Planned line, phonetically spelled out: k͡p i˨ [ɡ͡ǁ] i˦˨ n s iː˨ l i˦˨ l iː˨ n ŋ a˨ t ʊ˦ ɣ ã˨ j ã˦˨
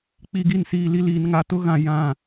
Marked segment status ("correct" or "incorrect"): incorrect